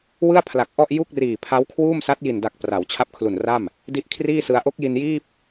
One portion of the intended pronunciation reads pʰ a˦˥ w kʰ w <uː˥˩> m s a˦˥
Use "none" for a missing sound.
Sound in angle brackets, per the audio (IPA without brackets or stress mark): uː˥˩